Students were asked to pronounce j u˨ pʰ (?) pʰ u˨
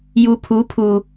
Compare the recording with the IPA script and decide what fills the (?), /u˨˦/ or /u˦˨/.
u˨˦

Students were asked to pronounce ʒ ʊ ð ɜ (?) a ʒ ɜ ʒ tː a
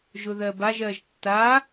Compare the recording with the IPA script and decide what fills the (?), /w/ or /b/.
b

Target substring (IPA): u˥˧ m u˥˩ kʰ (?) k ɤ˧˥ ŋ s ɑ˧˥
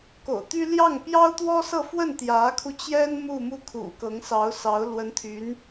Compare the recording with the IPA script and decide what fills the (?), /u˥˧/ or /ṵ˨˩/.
ṵ˨˩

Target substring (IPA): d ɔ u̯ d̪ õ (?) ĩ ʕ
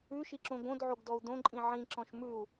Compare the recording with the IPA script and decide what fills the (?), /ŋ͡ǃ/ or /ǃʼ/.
ǃʼ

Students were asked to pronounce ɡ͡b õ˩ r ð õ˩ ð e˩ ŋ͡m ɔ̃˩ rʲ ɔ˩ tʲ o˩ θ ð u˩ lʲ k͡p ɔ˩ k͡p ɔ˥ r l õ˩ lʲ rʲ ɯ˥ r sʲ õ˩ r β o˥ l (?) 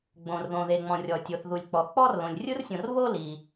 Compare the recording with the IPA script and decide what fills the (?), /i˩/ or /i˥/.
i˩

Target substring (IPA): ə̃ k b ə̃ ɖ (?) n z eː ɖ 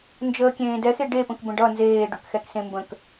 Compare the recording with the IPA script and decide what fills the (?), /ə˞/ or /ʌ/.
ʌ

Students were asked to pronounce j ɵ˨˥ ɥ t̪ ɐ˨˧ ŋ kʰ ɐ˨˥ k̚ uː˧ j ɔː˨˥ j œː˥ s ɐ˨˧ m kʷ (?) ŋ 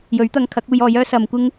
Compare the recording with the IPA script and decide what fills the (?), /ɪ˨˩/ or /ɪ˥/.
ɪ˥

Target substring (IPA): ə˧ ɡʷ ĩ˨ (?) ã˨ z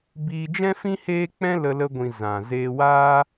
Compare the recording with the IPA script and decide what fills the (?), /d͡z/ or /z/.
z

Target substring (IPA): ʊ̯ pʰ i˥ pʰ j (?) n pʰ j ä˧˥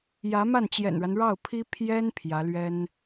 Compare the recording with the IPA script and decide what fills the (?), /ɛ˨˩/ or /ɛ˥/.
ɛ˥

